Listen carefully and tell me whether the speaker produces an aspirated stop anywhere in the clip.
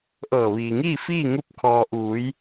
yes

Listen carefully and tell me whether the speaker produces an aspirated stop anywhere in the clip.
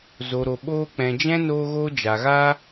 no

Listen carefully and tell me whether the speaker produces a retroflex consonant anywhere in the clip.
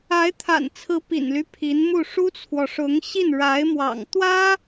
yes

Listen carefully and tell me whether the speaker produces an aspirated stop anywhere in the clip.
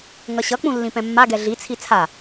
yes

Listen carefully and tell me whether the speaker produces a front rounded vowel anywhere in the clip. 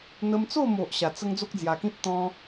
no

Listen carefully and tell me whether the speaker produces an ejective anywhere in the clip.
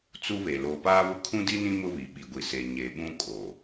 yes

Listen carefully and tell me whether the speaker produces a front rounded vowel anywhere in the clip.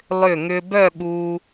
yes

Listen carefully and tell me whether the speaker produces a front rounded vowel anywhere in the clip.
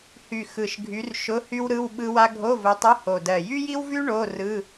yes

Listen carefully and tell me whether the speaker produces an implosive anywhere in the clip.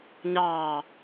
no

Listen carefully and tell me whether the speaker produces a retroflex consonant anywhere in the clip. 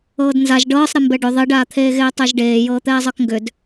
yes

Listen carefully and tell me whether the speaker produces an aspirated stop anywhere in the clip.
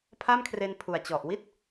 yes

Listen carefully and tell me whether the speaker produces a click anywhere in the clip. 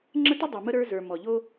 yes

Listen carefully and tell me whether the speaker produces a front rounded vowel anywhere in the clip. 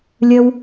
no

